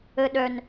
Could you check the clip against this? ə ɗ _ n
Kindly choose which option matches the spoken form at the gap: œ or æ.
œ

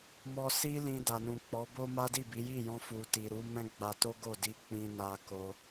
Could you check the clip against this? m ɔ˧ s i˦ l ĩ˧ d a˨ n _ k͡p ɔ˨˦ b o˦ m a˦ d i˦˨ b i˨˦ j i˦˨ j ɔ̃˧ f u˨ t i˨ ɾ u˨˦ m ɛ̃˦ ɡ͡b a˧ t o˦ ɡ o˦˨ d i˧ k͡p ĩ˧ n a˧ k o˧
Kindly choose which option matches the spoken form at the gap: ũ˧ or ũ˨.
ũ˨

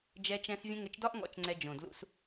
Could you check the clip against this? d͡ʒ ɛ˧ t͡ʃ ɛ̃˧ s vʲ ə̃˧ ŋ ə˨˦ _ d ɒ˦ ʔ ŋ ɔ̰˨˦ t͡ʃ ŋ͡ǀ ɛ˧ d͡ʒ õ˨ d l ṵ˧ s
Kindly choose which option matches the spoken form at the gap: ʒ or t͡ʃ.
t͡ʃ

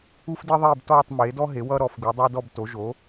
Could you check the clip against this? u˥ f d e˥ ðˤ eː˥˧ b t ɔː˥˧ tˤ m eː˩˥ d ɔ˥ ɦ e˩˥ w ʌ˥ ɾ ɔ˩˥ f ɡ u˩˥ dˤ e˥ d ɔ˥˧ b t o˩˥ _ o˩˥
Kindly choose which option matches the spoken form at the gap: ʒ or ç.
ʒ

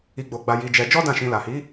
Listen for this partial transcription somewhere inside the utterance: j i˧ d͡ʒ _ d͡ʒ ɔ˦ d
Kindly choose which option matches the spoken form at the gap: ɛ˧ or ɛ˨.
ɛ˧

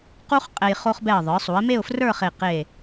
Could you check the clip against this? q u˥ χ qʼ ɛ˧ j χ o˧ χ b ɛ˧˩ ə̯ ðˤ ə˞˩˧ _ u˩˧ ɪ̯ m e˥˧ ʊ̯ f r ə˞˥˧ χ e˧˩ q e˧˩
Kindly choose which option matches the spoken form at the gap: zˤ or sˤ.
sˤ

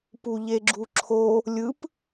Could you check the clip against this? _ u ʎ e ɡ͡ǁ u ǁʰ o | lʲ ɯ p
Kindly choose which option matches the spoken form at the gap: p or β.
p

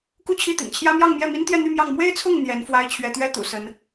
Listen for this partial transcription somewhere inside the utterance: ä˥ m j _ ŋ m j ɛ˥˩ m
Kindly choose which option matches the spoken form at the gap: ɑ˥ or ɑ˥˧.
ɑ˥˧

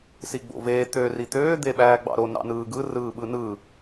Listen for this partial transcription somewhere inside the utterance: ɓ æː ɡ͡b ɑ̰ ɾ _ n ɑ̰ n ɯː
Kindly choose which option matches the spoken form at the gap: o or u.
o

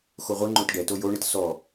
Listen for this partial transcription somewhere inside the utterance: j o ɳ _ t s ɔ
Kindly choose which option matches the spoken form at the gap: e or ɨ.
e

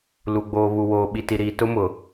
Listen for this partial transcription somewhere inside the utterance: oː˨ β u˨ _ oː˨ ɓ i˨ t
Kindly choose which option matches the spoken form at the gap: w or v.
w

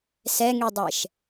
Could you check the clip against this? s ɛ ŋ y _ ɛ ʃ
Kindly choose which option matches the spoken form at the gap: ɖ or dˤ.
dˤ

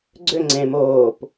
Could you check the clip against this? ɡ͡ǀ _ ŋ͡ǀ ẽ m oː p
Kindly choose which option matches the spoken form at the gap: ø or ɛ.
ø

